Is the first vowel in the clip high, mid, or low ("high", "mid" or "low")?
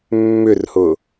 high